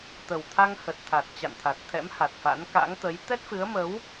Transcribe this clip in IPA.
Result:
t̪ə˨˩wt̪ʰa˧ŋhə˨˩t̚t̪ʰa˨˩t̚ t͡ɕa̰˧˨nt̪ʰa˨˩t̚t̪ʰɛ̰˧˥m ha˨˩t̚fa̰˧˥n ka̰˧˥ŋt̪ə˨˦j t̪ɛ˦˥t̚fɨ˨˦ə̯mə˨˦w

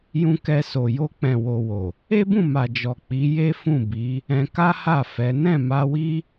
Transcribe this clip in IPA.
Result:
jũ˧kɛ˧ so˨ jo˧k͡pɛ̃˨ wo˨ wo˨ | e˦bũ˦˨ ma˨d͡ʒɔ˨k͡pi˨˦ je˦fũ˦˨bi˨˦ | ɛ̃˧ka˦ ha˦˨fɛ˨˦ nɛ̃˦˨ma˧wi˦

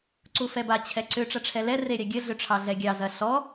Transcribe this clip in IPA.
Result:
ǀufɛba t͡ɕʰɛǀʏ ʈ͡ʂɐʈ͡ʂʰɛlɛ reɾʲaɡʲə ɮʏʈ͡ʂʰɑɮɛɡʲɑ zɐ ɬɔ

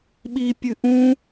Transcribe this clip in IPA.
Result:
ɓipʲɨ ʔũ

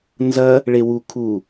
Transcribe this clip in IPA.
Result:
nzɐ | ɭewu kʰu

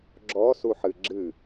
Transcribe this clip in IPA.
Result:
ɡ͡ǁɔsuħɨ ɡ͡ǁɨ

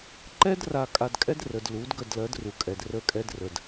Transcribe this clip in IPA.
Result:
ǃɛ˦dra˨kʼa˨dkʼɛ˦d rə˨dlu˨˦d ɡə˦˨dlɜ˨˦dru˨kʼɛ˨d rə˦˨kʼɛ˦drə˨d

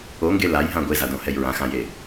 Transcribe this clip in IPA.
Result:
oŋɡe lajɦã ɡʷezadõhɛj ɹãxãje

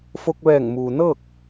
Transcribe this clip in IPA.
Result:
fo˧k̚ʋɛː˧˩ŋmuː˩nɤː˥˨k̚

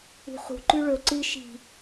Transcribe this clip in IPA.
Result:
ṳχṳ ǃʉɭɵ ǀɨ ʃi̤

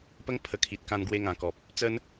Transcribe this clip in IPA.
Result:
pə˦ŋ pʰə˧ kʰi˨t̚kã˧nɡwe˧ŋã˨˩ kɔ˨p̚ | t͡sə˦n

